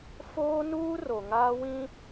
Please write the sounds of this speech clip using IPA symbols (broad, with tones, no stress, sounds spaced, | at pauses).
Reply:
f oː˦ n uː˦ r o˨ ŋ aː˦ w ĩ˦